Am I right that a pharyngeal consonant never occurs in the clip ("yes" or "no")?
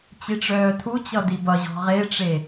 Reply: yes